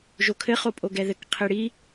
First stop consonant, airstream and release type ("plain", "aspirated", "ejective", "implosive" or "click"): aspirated